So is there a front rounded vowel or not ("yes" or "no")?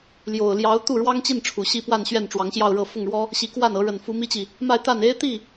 no